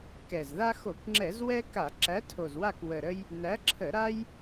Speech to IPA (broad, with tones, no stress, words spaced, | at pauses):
kɛ˨˩zða˦ xo˧˩˧kŋ͡ǁɛ˧˩˧zwɛ˦ ka˧˩˧ ǁæ˨˥tʰo˨˩zwa˦˨k wə˨˩ɾə˦j | næ˨˥ ǁʰə˧˩˧ ɾa˦j